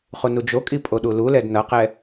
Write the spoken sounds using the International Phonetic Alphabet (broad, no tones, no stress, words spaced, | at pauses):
χunud͡ʒokʼi pʼoɗululɛd nʌqɛ